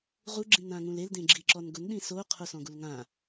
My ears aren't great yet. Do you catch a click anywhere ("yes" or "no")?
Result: yes